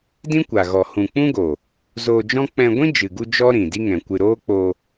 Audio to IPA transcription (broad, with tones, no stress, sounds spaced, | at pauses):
d ĩ˦ kʷ a˨ ɣ ɔ˨ h ũ˨ k͡p ũ˦ ɡ o˨ | z oː˧ d͡ʒ ɔ̃˦ k͡p ɛ̃˧ ɡʷ ĩ˦ d͡ʒ ɨ˨ ɡ u˧ d͡ʒ ɔ˦ ɾ ĩ˨ d i˦ ŋ ɛ̃˨ kʷ ɨ˧ ɾ oː˦ k͡p o˧